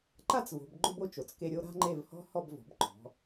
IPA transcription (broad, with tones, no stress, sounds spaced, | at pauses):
ǃ a˥ t͡s v o̤˩˧ b ɡ͡ǃ ʊ˥ b o˧ t͡ʃ o˩˧ t͡s k e˧ ɾʲ o˧ ɾ a̤˥ ŋ͡ǃ e˥˧ v h ɔ̤˥ h ɔ˥˧ b v ɔ̤˩˧ b ǃ ɔ̤˩˧